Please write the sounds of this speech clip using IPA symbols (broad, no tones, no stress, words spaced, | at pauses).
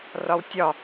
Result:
rɒwtʲɒ